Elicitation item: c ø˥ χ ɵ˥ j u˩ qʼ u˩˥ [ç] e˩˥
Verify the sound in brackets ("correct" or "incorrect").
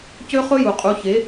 correct